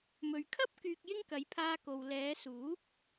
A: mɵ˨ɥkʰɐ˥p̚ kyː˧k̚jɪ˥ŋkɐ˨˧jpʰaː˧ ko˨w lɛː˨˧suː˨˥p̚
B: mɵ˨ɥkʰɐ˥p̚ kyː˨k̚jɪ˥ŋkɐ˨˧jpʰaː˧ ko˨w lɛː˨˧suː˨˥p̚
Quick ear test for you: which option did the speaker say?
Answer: A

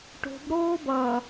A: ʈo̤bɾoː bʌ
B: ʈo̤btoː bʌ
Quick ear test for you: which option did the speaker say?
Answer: A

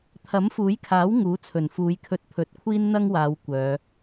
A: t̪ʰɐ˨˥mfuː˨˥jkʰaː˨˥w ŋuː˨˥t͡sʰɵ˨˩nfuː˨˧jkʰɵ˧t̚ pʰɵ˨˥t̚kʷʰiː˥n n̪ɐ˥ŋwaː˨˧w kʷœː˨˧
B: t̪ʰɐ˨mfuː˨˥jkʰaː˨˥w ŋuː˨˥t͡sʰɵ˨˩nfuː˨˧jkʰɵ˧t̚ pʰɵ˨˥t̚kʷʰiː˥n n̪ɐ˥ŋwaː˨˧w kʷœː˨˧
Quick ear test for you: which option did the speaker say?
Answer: A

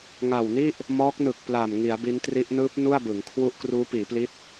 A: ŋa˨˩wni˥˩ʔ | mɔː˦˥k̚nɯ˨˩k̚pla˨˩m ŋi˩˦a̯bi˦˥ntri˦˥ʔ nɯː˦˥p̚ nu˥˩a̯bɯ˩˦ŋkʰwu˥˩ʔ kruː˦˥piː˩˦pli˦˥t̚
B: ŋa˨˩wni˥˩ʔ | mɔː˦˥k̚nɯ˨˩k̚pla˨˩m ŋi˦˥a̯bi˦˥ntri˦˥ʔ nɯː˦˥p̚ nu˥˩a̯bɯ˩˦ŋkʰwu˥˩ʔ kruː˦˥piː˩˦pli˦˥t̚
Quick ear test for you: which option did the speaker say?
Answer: A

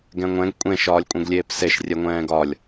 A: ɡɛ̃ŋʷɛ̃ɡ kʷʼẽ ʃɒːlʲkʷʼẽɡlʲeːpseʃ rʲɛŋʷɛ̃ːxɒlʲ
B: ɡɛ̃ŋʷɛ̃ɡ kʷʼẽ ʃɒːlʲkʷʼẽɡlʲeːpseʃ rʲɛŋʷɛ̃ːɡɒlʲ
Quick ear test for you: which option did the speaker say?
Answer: B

